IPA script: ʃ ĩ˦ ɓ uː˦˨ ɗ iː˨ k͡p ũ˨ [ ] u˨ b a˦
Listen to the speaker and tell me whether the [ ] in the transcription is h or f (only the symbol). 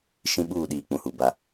h